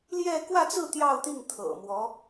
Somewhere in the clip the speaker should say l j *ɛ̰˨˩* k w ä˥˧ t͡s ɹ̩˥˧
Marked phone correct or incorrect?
incorrect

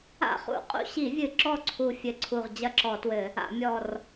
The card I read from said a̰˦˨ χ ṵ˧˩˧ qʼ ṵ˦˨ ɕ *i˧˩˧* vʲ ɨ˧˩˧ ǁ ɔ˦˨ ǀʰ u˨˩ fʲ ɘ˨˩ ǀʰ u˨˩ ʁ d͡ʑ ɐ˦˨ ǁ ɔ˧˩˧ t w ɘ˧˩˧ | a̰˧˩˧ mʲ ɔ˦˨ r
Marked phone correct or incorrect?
correct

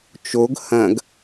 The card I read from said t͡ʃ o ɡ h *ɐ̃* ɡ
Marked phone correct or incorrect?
correct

